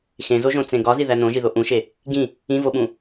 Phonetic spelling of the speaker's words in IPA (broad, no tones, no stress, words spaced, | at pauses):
xẽzoʒõt͡sẽ ɡɒziðæ nõʒiðo ʔũʃe | ɡĩ | ĩvoɓũ